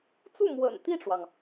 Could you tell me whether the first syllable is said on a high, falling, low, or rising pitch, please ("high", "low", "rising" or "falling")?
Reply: falling